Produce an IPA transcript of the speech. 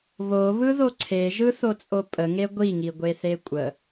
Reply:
β o β ɯ ð o ǀʰ e ʒ ɯ θ o t͡sʼ o pʼ ə ŋ e ɡʷ i ŋ i ɡʷ e θ e kʷʼ ə

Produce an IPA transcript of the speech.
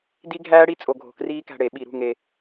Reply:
d i˦˥ ɡʱ æː˦˥ ɽ i˦˥ t͡sʼ o˧ ɡʱ o̤˧ k r iː˦˥ k æ̤˧ ɽ e˧˩˧ ɓ i˧˩˧ ɾ ṳ˥˨ ŋ e˧

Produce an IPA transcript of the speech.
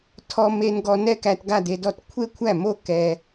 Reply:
tʰ ɔ˧ m e˧ n ɡ ɔ˧ n ɛ˥˧ k æ˧ t ɡ a˥˧ d e˧ d ɔ˥˧ t kʷʰ e˥˧ kʷʰ æ˥˩ m o˥˧ k ɛ˧

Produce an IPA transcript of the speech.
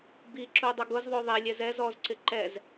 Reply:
b i ǁ u dˤ ʊ ɡ ʊ z ðˤ o ðˤ e lʲ ɛ z ɛ z ɔ z ǀ ɪ ǃ ɛ z

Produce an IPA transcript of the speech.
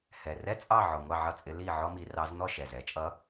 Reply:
h ɛ˨˩ r ɛ˥ t͡sʼ ɑ˥˨ ʕ ɔ˨˩ ŋʷ ɑ˥˨ ʕ ʌ˥˨ t͡sʼ ɪ˧˥ l i˥˨ ʕ ɔ˥ m i˧˥ r ɑ˧˥ z n̪ ɔ˥˨ ʃ ɛ˨˩ z ɛ˧˥ t͡ʃʼ ʌ˧˥

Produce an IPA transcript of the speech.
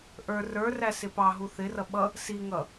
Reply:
ʔ ə˞ r ə˞ r æ s ɪ p ɑ ɦ u θ ɪ r ʌ ɓ ʌ | s i ŋ ʌ

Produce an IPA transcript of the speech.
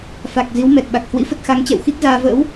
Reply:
f a˨˩ k̚ z i˨˦ w m ɛ˨˩ t̚ ɓ a˨˩ k̚ h w ḭ˧˥ f ə˦˥ t̚ x a˨˦ ŋ t͡ɕ ɛ̰˧˨ w x i˦˥ k̚ z aː˧ v ə̰ː˧˥ w

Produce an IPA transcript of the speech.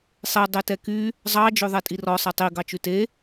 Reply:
sˤ e dˤ e t ɛ k y | zˤ ɑ d͡ʒ ø ðˤ ɛ tʼ i r ɔ sˤ e tˤ i ɡ ɑ t͡ʃ ʉ t e

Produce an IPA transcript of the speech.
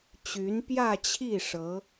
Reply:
t͡ɕ y˧˥ n p j ä˥˧ t͡ɕʰ i˥˩ ʂ ɤ˧˥

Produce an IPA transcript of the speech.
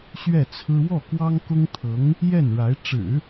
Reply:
ɕ ɥ ɛ˥˩ t͡sʰ ɹ̩˥ w ɔ˥˩ k w ɑ˥ ŋ k ʊ˥ ŋ t̪ʰ ɤ˧˥ ŋ | j ɛ˥˩ n ɻ a˧˥ ɪ̯ ʈ͡ʂ ɻ̩˨˩˦

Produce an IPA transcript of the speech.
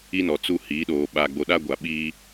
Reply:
i˦ n ɔ˨ t͡s u˦ h iː˨˦ ɗ oː˨ ɓ aː˨ ɡ͡b o˨ ɗ a˦ ɡʷ a˨ ɓ iː˦

